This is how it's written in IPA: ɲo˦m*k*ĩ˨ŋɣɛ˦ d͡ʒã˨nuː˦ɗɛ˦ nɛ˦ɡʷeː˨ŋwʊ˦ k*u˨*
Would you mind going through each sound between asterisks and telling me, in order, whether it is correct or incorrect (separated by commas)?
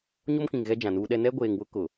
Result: correct, incorrect